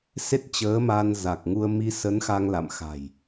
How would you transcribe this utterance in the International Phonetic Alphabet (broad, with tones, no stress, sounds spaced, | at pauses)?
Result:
s e˦˥ t̚ t͡ɕ əː˨˦ m a˧ n z a˨˩ k̚ ŋ u˧ ə̯ m i˧ s ə˨˦ n x a˧ ŋ l a̰˧˨ m x a̤˨˩ j